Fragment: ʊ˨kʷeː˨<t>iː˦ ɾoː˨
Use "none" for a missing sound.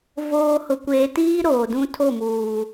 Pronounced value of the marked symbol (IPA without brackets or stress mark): t